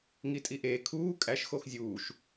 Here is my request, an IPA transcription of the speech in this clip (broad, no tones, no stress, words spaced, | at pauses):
ŋitʼiʔeː kʰuː kʼæʃ xoxzʲuːʃ